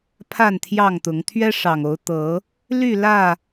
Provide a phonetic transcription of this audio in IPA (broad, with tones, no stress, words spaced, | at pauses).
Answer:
pʰa˥˨nt̪ʰjɑ˥˨ŋt̪ʊ˨˦ŋ t̪ʰɥɛ˦ʂɑ˨˩ŋo˨˦ʊ̯ t̪ɤ˨˦ | ly˥˨lä˥˨